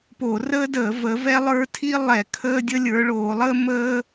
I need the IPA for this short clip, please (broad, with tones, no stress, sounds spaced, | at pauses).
p o˧˩˧ r əː˥ d əː˧˩˧ v ə˨˦ v ɛ˥ lˠ ə˞˥ tʰ i˥ lˠ ɛ˧˩˧ kʰ əː˥ dʲ ə˥ lʲ ə˞˨˦ ɭ oː˧˩˧ lˠ əː˥ m əː˥